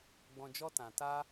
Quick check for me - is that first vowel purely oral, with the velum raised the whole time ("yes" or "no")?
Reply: no